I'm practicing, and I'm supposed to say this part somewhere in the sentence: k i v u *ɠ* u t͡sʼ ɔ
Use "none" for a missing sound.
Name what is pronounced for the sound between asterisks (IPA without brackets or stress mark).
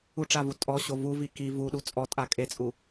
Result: ɗ